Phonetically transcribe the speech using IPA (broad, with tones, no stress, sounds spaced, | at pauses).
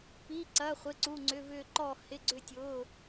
p i˩˧˩ ǀ ɐ˩˧˩ χʷ ɪ˩˧˩ ǀ u˩˧˩ ŋ͡ǀ ʏ˩˧˩ v ʏː˧˩ ǃ ɔː˧˩ h ɪ˩˧˩ ɡ͡ǀ ʏ˧˩ tʲ ʊː˩˧˩